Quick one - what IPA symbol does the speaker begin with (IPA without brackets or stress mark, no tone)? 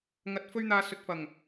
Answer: ŋ